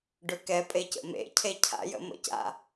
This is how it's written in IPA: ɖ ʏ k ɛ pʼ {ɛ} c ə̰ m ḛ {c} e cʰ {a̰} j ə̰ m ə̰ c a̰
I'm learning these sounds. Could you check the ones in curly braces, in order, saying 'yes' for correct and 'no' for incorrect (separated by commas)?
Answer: no, no, yes